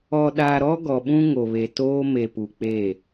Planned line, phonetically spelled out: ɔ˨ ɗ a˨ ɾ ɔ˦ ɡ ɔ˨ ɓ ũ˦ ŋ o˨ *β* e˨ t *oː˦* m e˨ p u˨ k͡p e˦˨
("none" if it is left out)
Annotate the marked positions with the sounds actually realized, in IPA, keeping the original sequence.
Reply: β, oː˦

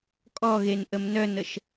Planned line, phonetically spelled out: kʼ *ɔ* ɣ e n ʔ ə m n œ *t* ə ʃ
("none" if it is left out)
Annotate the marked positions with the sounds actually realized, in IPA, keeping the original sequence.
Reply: ɔ, n

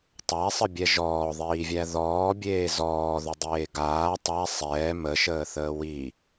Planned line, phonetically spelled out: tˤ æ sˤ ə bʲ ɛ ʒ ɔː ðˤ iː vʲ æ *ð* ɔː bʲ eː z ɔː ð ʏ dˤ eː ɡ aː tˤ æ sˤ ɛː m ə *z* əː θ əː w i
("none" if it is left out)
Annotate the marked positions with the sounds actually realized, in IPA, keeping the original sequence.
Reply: ð, ʃ

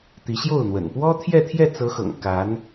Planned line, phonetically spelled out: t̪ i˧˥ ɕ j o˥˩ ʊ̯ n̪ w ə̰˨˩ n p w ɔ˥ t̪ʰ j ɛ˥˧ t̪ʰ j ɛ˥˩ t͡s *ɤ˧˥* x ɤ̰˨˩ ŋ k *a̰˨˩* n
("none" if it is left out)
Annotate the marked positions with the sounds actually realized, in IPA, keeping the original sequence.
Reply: ɤ˧˥, a˧˥

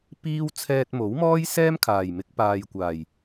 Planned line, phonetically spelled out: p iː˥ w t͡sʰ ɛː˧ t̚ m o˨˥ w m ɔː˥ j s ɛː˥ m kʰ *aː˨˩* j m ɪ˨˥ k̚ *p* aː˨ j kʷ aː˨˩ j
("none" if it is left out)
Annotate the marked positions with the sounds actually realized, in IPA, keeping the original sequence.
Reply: aː˨˩, p

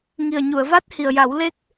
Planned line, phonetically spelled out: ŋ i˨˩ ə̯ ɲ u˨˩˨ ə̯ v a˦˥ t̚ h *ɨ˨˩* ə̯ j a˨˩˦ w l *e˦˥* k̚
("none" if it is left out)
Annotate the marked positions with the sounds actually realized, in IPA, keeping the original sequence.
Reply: i˨˩, e˦˥

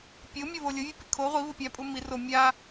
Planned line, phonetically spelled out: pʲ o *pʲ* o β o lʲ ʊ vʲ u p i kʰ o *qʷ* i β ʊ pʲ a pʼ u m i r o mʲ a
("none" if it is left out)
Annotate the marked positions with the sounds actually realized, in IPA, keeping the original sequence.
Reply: mʲ, ʁʷ

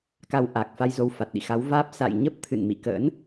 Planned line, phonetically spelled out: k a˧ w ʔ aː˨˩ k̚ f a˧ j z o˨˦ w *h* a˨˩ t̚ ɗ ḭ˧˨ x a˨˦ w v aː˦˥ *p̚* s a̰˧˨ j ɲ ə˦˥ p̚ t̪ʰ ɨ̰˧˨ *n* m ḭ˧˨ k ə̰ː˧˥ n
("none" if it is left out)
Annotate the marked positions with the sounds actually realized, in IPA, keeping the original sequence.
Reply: f, p̚, n

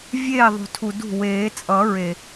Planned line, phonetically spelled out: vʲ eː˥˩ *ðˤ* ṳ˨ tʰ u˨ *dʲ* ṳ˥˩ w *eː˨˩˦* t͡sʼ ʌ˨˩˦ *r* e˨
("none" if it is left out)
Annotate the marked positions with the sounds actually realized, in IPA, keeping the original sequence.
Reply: ðˤ, d, eː˨˩˦, ɹ

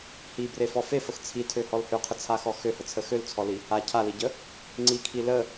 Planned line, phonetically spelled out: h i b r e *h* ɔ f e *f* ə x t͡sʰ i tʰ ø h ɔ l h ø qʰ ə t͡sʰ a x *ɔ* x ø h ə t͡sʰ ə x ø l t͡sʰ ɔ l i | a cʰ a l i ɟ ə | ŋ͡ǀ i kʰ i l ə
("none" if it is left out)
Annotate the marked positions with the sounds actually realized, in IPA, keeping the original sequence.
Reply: f, f, ɔ

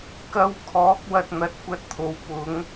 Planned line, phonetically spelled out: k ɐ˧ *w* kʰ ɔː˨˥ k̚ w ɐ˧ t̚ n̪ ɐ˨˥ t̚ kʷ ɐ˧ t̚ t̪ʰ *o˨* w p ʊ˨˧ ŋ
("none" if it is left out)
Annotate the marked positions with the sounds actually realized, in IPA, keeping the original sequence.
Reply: w, o˨

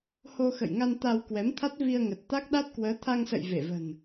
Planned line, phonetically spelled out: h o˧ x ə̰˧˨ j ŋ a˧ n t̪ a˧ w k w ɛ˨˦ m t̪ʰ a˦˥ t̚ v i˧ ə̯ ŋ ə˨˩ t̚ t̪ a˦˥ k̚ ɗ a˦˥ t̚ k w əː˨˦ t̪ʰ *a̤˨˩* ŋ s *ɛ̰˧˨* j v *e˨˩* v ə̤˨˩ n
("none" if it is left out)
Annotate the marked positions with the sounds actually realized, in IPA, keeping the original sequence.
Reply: a˧, ə̰˧˨, e˧˩

